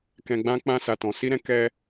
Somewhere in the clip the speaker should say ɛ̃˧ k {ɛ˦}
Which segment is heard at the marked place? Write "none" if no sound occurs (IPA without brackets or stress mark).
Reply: ɛ˦